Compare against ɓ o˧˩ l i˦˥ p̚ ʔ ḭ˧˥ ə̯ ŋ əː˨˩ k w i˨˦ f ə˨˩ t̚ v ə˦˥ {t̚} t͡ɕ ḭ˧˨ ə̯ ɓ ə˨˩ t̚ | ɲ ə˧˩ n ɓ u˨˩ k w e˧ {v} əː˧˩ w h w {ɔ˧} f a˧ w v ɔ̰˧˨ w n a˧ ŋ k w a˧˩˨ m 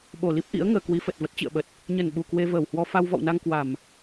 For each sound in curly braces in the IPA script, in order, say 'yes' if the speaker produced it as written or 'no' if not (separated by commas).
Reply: yes, yes, yes